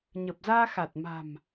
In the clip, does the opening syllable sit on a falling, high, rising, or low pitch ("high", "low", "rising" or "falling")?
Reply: low